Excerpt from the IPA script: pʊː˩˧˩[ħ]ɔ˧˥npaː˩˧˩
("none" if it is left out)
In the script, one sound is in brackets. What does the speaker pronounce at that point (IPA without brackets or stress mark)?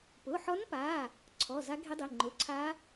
ħ